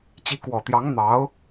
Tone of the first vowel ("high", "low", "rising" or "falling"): rising